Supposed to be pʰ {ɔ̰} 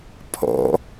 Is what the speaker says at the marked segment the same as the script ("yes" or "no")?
yes